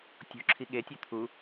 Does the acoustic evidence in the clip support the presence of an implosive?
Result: yes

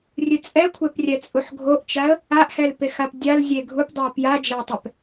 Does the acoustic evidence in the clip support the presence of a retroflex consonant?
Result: no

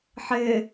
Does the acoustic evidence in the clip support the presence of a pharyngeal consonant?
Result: yes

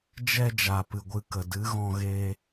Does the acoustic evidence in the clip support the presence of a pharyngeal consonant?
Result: no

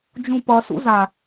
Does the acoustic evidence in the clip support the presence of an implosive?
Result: no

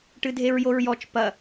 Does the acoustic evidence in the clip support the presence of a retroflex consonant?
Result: yes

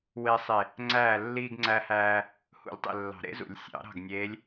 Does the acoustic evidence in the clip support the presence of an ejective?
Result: no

